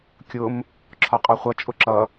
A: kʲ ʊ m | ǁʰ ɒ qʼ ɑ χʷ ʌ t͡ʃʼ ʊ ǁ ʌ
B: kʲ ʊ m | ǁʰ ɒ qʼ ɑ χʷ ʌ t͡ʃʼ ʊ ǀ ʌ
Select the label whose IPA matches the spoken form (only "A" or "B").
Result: A